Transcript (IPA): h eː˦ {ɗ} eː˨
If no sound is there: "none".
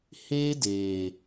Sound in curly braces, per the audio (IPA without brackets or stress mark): d